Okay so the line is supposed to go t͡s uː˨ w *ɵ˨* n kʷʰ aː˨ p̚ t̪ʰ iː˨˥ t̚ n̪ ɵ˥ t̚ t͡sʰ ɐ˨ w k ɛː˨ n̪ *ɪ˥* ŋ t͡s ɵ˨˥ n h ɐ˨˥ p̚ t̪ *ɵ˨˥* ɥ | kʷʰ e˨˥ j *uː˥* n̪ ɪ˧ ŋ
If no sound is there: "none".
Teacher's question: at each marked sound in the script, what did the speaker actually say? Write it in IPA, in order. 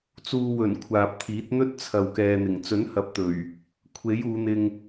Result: ɵ˨˩, ɪ˨˩, ɵ˨˩, uː˨˧

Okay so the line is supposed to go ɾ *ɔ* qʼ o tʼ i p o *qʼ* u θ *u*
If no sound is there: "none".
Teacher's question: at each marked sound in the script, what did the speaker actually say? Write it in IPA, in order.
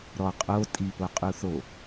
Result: ɔ, qʼ, o

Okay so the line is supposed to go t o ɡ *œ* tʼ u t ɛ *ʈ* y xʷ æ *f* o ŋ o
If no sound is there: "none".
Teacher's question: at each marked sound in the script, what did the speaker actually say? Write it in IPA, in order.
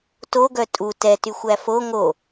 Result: œ, t, f

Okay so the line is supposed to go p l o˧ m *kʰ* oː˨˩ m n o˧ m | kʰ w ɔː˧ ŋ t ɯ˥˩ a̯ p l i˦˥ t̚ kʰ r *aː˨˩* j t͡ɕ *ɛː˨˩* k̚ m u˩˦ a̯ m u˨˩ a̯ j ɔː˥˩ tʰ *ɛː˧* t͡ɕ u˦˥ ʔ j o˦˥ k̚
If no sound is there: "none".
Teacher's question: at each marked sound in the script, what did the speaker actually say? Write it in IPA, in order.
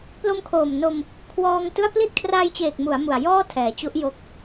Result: kʰ, aː˧, eː˨˩, ɛː˩˦

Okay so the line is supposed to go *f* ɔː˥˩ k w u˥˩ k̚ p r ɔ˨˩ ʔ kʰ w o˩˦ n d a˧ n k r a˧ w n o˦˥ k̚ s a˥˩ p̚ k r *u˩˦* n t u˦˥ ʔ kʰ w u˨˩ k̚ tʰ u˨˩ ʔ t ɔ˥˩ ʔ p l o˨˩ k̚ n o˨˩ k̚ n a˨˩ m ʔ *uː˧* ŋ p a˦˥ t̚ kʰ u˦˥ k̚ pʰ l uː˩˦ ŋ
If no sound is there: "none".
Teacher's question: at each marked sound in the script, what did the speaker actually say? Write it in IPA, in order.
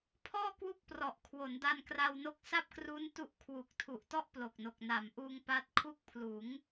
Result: pʰ, u˦˥, uː˧

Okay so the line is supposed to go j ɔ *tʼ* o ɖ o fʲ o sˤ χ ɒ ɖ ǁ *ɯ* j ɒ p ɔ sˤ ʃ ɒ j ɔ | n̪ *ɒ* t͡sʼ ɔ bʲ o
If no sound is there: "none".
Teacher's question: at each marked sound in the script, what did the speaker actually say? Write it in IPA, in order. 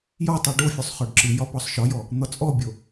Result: tˤ, ɯ, ɒ

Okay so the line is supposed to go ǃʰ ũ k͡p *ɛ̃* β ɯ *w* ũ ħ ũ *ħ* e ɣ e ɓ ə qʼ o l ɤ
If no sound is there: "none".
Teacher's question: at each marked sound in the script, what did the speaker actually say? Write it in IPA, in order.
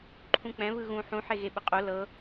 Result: ɛ̃, ɣ, ħ

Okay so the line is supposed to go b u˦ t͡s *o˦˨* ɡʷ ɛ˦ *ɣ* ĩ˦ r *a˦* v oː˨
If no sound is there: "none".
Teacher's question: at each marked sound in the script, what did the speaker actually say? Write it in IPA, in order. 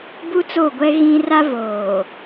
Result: o˦˨, ɣ, a˦

